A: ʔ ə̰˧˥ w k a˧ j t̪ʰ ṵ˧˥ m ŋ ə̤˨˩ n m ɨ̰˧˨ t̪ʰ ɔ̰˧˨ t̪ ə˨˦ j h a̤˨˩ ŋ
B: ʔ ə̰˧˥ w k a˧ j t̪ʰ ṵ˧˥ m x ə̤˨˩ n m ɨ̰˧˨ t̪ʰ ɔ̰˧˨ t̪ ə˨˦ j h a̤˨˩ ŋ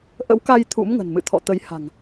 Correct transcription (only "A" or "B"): A